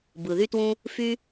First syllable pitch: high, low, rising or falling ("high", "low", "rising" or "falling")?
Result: low